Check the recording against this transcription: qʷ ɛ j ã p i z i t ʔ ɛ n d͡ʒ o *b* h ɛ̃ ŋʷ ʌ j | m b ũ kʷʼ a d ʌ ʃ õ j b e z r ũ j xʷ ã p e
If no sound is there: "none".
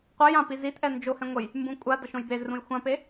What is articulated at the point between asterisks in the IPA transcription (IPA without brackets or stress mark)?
none